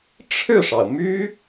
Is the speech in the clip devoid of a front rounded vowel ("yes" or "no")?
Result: no